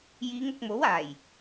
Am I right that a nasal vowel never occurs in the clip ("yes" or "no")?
yes